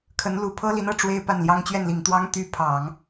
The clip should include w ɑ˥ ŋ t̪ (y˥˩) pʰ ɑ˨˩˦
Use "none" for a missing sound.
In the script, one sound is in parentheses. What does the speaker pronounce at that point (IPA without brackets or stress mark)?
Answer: y˧˥